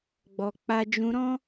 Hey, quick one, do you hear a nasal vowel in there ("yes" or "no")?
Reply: yes